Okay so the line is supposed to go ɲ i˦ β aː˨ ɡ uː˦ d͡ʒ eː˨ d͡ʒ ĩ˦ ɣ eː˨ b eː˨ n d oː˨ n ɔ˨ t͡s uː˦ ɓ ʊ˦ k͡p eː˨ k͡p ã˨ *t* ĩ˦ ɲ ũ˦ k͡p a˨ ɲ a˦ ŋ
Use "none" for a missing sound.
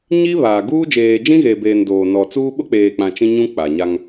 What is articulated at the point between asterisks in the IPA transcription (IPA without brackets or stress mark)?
t͡ʃ